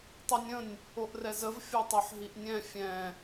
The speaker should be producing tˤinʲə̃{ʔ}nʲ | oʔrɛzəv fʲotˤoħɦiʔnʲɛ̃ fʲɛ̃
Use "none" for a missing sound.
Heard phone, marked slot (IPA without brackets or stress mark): none